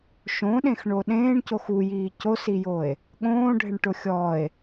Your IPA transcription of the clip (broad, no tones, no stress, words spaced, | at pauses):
ʃõɗẽxɳo ɗẽːɳcox ujiː cosijoe̯ | ɠõːɖʱɪɳʈʊ xʲɔe̯